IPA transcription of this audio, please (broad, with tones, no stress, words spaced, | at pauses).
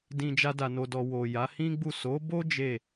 dĩ˧ d͡ʒa˦da˧no˧dɔ˧ wo˨ja˨˦ hĩ˦ɡ͡bu˦˨ so˨˦bo˦ d͡ʒe˦˨